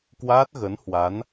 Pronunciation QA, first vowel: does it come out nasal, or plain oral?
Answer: oral